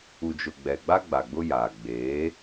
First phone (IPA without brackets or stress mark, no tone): u